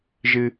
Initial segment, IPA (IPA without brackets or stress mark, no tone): ʒ